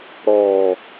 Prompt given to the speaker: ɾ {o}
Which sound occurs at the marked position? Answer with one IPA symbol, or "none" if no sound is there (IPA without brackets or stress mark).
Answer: ɔ